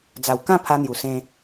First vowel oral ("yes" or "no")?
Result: yes